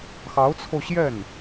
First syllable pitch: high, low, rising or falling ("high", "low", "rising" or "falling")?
rising